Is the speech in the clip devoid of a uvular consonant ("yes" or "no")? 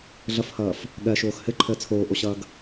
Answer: yes